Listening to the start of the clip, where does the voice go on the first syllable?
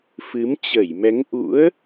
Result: rising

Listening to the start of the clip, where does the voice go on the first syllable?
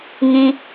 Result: high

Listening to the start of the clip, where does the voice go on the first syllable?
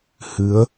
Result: rising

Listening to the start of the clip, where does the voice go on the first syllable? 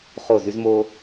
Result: falling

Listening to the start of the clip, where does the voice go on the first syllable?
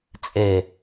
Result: low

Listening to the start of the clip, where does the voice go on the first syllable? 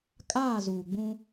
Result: falling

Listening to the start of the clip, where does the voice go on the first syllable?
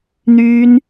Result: high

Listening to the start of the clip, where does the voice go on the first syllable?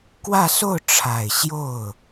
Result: falling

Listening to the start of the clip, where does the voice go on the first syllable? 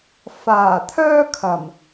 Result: low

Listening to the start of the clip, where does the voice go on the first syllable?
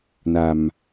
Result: low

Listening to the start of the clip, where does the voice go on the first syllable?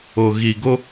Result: low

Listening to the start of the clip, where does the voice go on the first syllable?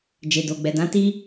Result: low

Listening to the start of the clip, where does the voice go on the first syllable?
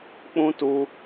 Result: high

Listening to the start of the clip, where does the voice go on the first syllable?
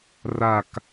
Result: falling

